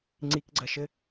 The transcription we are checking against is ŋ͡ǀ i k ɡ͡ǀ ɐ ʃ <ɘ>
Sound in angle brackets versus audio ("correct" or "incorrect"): correct